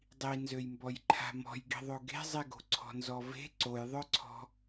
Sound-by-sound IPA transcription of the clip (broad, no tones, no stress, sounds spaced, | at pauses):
dˤ i n z ø j m b ɔ j ǃʰ a̤ m ɔ̤ j ɡ i̤ ðˤ o ɡ e̤ zˤ i ɡ o̤ ǀʰ ɔ̤ n z ɔ v e̤ ǀ o j ðˤ œ ǀʰ ɔ̤